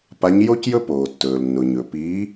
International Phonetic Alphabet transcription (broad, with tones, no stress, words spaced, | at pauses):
pa˨˦ɲjo˦cjɵ˦ poː˩tːɵː˩lnːʊ˩ɲɵ˩ piː˨˦